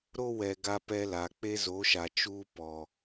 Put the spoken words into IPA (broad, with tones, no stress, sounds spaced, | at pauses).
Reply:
ɾ o˦ w ɛ˨ ɡ a˦ p ɛ˦ l a˨ k͡p e˦ z o˨˦ ʃ a˨ t͡ʃ uː˦ p ɔ˨